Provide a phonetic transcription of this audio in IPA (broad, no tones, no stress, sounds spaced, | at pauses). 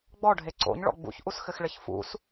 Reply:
ɡ͡b ɔ ɖʱ e ǀ o̰ ɲ ɭ ɔ̰ ɡ͡b ṵ ç ʔ u s x ɘ x ɭ ɘ ç f ṵ s